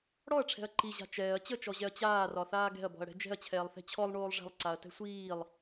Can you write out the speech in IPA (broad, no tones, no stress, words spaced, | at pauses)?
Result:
ɽɔɐ̯ʈ͡ʂʰɛ̤ɐ̯ ǃiʑa̤ t͡ʃɛːɐ̯ t͡ɕət͡ʃɔʑɛɐ̯ t͡ɕaːrɒθaː ɡɛ̤ɐ̯bɔ̤ɐ̯ɽɛ̤ d͡ʒɛ̤ɐ̯t͡ɕʰɛːlˠθɛ̤ t͡ɕʰɔlˠɳoːlˠ ʐɛ̤lˠǀaɐ̯tɛ̤ sʷiːlˠ